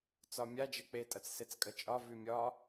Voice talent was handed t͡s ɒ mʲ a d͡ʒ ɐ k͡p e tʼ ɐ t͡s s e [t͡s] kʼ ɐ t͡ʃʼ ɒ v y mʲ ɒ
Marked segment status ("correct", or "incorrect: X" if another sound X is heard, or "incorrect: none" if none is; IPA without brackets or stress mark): correct